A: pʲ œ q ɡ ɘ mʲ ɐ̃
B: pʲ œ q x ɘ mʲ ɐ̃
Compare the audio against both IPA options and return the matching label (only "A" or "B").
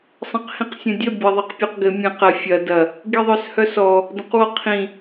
A